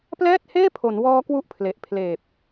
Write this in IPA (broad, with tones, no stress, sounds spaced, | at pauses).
p l ɛː˥˩ t̚ h eː˥˩ pʰ o˩˦ n w ɔː˦˥ k w u˦˥ ʔ pʰ l e˨˩ ʔ pʰ l eː˨˩ p̚